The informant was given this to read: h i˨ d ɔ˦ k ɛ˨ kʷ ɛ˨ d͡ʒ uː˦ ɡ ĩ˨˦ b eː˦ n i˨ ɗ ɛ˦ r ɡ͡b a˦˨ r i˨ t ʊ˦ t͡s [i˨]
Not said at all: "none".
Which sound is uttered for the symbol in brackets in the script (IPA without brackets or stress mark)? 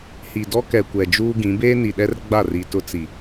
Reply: i˨